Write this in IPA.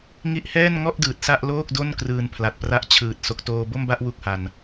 ŋ i˦˥ ʔ h ɛː˥˩ n ŋ ɔ˥˩ ʔ d ɯː˨˩ t̚ s a˥˩ ʔ l oː˥˩ k̚ d o˥˩ n k r ɯː˧ n pʰ l a˨˩ t̚ p r a˦˥ ʔ t͡ɕʰ ɯː˨˩ t̚ s o˨˩ k̚ t oː˧ b o˥˩ m b a˥˩ ʔ w u˥˩ k̚ h a˧ n

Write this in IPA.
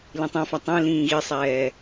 l ĩ tˤ ẽ f a tˤ ẽ l ĩː ɣ i sˤ ɛː

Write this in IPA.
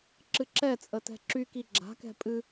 ǁ ɨ ǁ ɛ t͡sʼ ə t ɛ̤ ǁ y k i ɡ͡ǁ a̤ k ɛ̤ pʼ ɨ

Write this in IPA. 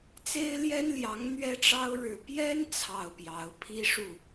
t͡s e˥ ɪ̯ l j ɛ˥ n l j ɑ˧˥ ŋ n̪ ɥ ɛ˥ ʈ͡ʂ ɑ˥ ʊ̯ ɻ ɻ̩˥˩ p j ɛ˥ n t͡sʰ ɑ˥˩ ʊ̯ p j ɑ˧˥ ʊ̯ pʰ i˥ ʂ u˥˩

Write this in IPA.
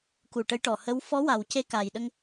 k u˨˩ ʈ ə˧˥ j ʈ ɔ˨˩ h ə˧˥ w f ɔ˧˥ w a˨˩ w c e˧ k a˨˩ j ɗ ə˧ ŋ

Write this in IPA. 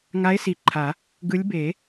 ŋ a˨˦ e̯ s i˨˩˦ ǃʰ a˨˩˦ | ɡ ɯ˨˦ lʲ b e˨˩˦

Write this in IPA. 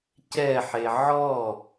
c ɛ ħ e ʕ ɔ

